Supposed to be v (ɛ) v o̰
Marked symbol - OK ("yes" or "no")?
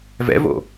no